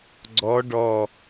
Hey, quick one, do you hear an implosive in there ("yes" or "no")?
no